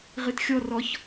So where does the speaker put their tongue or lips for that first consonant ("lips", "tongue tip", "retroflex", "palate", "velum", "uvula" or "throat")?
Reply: uvula